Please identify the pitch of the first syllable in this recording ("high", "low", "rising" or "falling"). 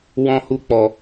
high